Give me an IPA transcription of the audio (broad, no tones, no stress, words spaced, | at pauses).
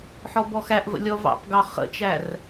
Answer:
ħɔbɔxæʔvə̰ lʲɔvɑ̰pɡɑ χə̰t͡ʃær